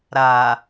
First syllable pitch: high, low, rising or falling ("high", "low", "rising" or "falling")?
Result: low